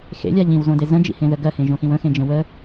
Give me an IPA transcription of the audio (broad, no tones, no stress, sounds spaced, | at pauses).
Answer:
x ḛ lʲ a ʎ ĩ w z õ d e z ə̃ d͡ʒ ḭ h ẽ ð ə ɡ ɜ h ẽ ʒ õ x ĩ w ə̃ x ẽ d͡ʒ ə̃ w ə